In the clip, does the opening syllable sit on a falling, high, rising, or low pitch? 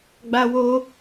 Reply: high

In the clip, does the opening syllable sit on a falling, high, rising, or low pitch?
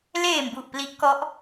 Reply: low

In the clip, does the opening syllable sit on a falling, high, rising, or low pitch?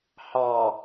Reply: low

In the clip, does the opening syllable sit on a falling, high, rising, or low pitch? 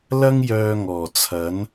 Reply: high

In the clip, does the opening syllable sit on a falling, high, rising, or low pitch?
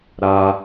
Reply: high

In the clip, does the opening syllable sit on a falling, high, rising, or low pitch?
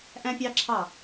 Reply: high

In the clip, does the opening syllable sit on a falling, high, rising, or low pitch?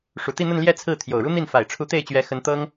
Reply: low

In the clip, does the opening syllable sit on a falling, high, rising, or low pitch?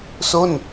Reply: falling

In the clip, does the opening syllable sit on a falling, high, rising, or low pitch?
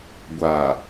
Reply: low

